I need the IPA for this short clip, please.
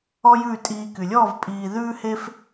ɔ˥ j ʉː˥˩ tʼ iː˧ k y˩ lʲ ɔː˥˩ v pʼ iː˧ ð ʉː˥ h e˥ f

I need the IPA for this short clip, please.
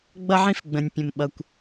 ɡ͡b ʌ˥ ʕ ĩ˥ f ɡ͡b ə̃˩ nʲ pʲ ə̃˩ m ɓ ʌ˩ kʷ

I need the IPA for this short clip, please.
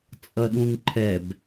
t͡sʼ ʌ ɗ ũ ŋ ǃʰ ɛ b

